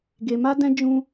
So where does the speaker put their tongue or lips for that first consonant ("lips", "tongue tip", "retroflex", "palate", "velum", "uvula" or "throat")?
velum